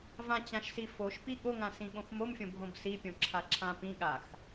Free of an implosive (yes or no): no